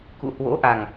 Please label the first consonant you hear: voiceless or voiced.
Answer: voiceless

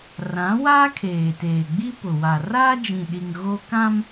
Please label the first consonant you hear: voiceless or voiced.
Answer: voiced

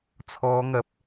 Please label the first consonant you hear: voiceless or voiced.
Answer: voiceless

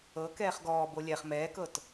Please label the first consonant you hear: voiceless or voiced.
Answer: voiceless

